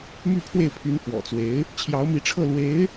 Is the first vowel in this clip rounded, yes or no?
yes